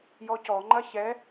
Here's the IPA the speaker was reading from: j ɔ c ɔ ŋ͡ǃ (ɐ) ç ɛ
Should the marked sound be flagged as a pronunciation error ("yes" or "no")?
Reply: no